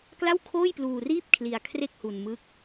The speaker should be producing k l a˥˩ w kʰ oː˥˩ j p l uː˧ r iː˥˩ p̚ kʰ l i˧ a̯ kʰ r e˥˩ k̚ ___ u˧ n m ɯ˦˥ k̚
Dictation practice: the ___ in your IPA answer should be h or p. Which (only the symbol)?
h